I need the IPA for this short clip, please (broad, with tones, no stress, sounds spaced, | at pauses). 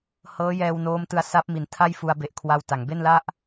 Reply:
h ɤː˦˥ j ɛː˧ w n oː˦˥ m t ɯ˧ a̯ s a˦˥ p̚ m i˩˦ n tʰ a˥˩ j f u˧ a̯ b e˨˩ ʔ kʰ w a˧ w t a˩˦ ŋ b e˥˩ n l a˥˩ ʔ